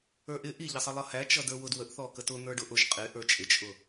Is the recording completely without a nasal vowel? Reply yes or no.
yes